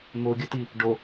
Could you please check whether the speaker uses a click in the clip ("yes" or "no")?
no